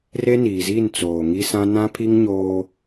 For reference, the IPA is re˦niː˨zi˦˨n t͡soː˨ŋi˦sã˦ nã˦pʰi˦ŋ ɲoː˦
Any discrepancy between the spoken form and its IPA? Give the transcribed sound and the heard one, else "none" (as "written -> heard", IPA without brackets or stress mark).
none